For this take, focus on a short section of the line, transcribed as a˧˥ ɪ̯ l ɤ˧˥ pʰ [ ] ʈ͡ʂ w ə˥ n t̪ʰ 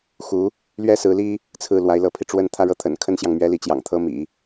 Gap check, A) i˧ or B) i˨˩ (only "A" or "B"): A